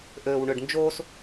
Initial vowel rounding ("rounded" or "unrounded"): rounded